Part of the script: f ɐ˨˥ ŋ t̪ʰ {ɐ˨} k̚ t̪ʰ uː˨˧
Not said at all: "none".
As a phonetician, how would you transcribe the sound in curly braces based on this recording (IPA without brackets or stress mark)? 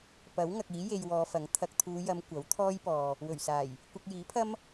ɐ˨